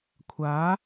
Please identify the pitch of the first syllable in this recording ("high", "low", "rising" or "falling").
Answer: rising